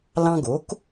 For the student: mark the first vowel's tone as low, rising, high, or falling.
high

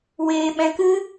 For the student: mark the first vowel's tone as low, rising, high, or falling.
high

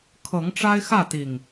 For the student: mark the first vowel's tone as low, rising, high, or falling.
rising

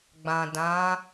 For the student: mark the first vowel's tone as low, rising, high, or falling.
low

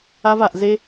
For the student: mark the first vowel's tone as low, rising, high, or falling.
high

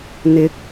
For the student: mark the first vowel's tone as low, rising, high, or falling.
rising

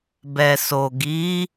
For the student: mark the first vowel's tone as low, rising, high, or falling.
low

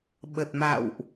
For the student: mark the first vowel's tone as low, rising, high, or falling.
low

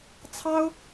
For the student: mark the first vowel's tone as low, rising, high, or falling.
high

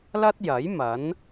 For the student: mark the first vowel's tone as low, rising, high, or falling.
high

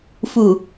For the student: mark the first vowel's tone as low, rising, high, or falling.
low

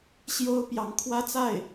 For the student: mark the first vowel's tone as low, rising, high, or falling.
high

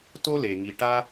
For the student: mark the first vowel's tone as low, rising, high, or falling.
high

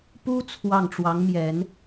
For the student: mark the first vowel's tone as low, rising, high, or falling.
high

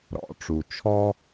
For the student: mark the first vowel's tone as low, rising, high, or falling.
low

